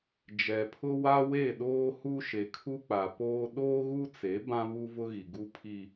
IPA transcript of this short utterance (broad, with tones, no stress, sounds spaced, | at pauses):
d͡ʒ ɛ˨ pʰ ʊ˦ w a˦ w e˦˨ ɗ oː˦ h u˦ ʃ e˨ kʰ u˦ k͡p a˨ p oː˦ ɗ oː˦ ɣ u˦ t͡s e˨˦ b ã˦ β u˦ v ʊ˦ ɣ i˨ ɡ u˦ pʰ i˦